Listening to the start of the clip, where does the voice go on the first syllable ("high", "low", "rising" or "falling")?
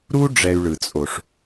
high